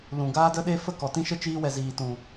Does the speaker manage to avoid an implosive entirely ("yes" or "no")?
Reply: no